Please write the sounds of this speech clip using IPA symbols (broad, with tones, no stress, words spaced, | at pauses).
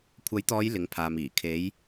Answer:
kʷʰɐ˨˥jt̪ɔː˨˧j lɪ˨˥ŋpʰaː˨miː˨˩ kʰe˨˧j